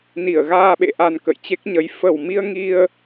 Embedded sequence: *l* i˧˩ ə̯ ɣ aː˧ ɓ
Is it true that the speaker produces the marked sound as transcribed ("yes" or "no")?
no